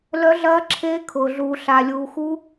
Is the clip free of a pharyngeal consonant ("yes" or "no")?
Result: yes